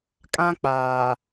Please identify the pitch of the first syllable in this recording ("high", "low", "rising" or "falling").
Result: high